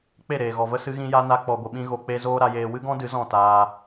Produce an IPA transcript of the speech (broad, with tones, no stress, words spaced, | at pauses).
k͡pe˦˨ɾeː˨ɣɔ˨və˦ sɨ˦ɣĩ˦ja˦ na˧k͡pɔ˨ɡʷə˨ɓĩ˧ ɣo˧k͡pe˦ zoː˦ɾa˧jeː˧ wɨ˦ɡɔ̃˦dɨ˨˦ zɔ̃˦˨taː˧